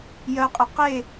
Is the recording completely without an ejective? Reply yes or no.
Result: no